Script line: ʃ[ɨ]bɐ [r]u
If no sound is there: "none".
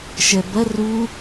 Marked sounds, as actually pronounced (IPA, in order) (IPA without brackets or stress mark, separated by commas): ɛ, r